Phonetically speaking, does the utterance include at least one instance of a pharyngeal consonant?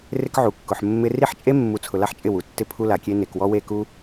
yes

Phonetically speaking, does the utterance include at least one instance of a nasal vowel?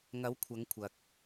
no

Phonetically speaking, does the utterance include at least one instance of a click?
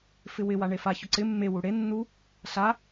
yes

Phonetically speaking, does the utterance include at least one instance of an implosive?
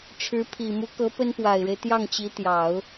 no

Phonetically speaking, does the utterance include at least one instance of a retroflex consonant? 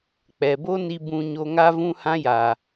no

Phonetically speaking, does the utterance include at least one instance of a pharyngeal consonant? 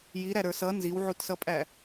yes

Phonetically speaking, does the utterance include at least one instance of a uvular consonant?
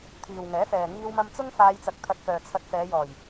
no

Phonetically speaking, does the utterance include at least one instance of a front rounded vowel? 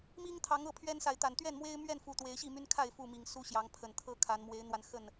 yes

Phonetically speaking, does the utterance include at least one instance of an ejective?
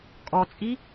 yes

